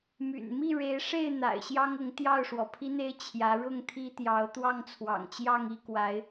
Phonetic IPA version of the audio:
my̰˨˩nmi˥˨ ɻe˨˦ɪ̯ʂe˥˨ɪ̯ n̪a̰˨˩ɪ̯ɕjɑ˦ŋʊ˨˦ŋ t̪jɑ˥˨ʊ̯ʂwɔ˩pʰi˦n̪e˦ɪ̯ t͡ɕʰjä˨˦ɻʊ˥˨ŋt̪ʰi˦t̪jɑ˨˦ʊ̯ t̪wɑ˥˨ŋt͡sʰwɑ̰˨˩ŋt͡ɕjɑ˥˨ŋ i˥˨kwa˨˦ɪ̯

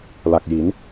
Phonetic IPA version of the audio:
la˨˩k̚ji˩˦n

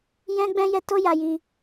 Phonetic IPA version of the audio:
jɛ̃˦ɡ͡bɛ̃˦jɛ˦ to˦ja˧ji˧

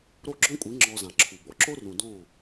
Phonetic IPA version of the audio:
ɾo˦˨ɡ͡ǁɔ̃˦kʷʼi˨˦ ŋ͡ǁɔ˧zã˨ ǁʰu˨bɔ̰˧ ǁo˦rũ˨dɔ̃˦˨

